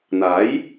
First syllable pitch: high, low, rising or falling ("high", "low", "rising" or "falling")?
rising